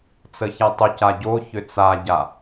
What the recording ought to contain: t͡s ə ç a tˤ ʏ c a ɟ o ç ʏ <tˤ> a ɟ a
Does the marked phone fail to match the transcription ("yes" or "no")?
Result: yes